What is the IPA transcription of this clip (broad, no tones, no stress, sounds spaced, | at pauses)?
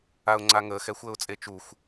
a ʊ̯ ŋ͡ǀ a ŋ əː x ɛ xʷ əː ʊ̯ t͡sʼ e t͡ʃ u xʷ